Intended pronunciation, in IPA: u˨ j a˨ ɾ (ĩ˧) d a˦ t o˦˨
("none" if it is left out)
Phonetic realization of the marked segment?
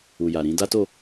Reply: ĩ˧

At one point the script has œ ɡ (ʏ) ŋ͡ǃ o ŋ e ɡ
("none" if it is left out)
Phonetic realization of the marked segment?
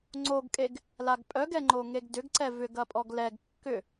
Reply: ɛ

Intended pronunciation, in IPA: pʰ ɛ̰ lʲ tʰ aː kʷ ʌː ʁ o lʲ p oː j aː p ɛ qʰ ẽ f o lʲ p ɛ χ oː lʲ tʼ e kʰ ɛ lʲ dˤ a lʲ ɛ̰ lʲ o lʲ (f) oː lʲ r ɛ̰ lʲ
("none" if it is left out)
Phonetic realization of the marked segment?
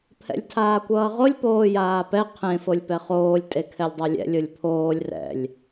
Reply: pʰ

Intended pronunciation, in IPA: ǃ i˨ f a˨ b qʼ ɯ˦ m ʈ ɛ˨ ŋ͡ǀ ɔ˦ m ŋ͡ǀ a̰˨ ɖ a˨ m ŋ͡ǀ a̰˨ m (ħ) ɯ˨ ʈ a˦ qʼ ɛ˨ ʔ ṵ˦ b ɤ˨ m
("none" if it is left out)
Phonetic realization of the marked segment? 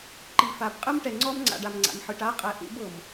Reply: ħ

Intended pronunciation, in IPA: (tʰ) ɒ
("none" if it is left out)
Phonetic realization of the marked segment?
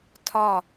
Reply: tʰ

